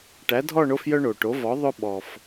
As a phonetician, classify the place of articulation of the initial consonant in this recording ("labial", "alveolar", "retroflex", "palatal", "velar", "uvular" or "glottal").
retroflex